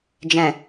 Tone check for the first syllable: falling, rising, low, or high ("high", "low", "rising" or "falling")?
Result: low